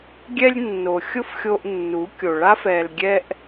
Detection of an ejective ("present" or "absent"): absent